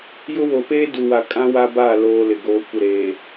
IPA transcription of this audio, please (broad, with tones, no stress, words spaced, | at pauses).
jʊ˦ wo˨peː˦du˨wa˨ kʼã˦wa˦ba˦˨ loː˦lɪ˨ɡoː˦ kʷɪ˦˨ɾeː˨